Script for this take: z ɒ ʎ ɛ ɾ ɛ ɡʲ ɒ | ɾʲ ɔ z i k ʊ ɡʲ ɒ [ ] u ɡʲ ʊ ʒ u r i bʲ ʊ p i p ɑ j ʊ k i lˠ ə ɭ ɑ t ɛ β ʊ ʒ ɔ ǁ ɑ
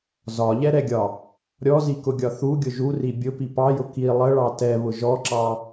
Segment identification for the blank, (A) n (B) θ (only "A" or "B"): B